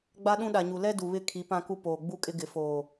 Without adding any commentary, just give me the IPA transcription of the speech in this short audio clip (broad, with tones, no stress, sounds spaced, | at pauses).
ɡ͡b a˦ ɗ ũ˦ ɗ a˨ ɲ u˨ l ɛ˦ d u˨ β ɪ˦˨ kʰ i˨˦ p ã˦ k u˦ p oː˨ ɡ͡b u˦ kʼ ɪ˦ ɡ ɪ˨ f oː˨